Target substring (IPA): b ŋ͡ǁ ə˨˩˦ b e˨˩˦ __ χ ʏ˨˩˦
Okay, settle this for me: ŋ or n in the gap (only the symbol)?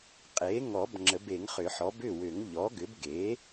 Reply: ŋ